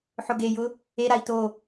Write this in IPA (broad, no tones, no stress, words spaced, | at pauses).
ħʊɡejʊ | eɾai̯ to